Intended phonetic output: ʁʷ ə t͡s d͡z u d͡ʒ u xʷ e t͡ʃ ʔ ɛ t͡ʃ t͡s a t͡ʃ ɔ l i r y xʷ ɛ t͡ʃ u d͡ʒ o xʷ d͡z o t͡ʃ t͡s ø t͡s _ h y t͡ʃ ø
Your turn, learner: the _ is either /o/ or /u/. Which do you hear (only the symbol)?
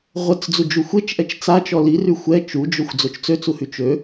u